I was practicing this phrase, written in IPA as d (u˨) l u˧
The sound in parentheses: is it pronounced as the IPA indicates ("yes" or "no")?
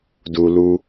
yes